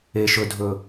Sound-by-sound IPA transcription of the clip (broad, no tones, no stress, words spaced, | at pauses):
eʃ ɵdʱɵ